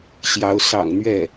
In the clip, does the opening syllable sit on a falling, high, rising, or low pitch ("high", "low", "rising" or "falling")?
rising